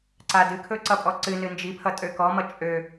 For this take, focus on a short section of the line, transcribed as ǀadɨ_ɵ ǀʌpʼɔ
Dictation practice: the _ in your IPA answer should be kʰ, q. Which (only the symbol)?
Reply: kʰ